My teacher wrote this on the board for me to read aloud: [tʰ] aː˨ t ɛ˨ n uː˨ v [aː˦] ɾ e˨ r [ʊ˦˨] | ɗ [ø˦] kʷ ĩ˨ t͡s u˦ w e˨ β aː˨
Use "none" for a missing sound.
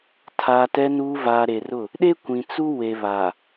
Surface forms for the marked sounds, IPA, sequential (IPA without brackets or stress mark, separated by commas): tʰ, aː˨, ʊ˦˨, e˦